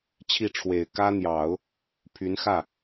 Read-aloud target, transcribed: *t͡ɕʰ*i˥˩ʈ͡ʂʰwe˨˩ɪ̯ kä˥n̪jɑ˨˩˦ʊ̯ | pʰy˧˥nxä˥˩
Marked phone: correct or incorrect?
correct